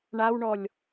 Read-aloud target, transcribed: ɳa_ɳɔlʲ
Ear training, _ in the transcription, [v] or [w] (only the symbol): w